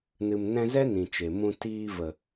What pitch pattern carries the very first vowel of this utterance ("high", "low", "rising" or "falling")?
low